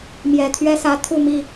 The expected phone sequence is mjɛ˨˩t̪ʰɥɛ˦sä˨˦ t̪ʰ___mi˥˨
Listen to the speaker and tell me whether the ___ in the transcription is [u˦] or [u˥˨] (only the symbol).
u˥˨